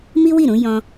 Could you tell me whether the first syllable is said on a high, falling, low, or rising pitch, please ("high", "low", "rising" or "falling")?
high